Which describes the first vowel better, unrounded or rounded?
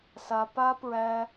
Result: unrounded